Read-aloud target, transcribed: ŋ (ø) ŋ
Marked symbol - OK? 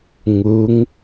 no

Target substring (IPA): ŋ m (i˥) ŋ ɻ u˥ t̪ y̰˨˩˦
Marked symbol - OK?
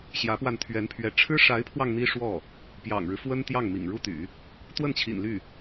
no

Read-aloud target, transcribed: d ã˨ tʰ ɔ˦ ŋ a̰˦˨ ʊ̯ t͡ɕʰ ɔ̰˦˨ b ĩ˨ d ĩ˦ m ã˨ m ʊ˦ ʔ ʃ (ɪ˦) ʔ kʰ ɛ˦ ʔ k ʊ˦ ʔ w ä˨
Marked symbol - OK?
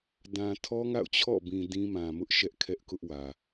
no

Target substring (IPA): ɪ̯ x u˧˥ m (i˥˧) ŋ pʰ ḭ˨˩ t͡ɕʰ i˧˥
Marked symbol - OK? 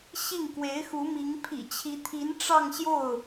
no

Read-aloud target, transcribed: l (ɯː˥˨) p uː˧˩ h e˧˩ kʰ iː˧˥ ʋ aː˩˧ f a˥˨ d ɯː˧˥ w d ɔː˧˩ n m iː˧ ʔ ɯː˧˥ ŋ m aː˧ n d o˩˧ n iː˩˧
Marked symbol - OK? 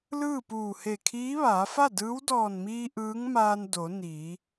yes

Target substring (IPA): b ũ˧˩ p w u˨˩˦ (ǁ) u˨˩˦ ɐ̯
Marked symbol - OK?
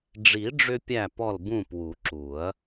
yes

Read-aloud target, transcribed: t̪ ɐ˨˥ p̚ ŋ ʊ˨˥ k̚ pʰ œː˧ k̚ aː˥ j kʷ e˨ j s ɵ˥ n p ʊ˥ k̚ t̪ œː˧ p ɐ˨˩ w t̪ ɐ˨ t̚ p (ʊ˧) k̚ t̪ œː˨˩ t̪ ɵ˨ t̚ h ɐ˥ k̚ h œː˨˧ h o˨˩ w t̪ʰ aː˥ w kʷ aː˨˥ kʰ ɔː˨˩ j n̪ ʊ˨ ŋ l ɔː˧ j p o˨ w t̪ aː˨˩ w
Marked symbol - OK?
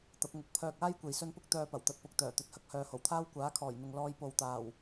yes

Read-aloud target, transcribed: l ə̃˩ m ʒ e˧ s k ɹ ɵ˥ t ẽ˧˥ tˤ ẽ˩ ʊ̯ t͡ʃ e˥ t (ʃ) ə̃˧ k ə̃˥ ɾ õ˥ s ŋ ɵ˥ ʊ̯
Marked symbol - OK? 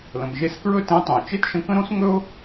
yes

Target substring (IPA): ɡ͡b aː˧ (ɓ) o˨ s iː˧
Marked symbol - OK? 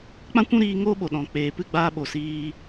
yes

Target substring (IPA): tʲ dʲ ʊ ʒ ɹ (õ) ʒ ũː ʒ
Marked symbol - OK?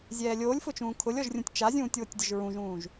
no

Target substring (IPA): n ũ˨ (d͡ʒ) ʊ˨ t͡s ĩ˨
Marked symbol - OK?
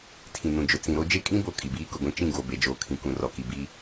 yes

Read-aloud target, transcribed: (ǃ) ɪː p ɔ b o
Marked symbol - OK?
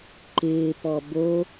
yes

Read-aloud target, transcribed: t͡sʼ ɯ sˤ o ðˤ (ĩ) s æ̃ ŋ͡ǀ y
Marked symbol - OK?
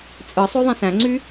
yes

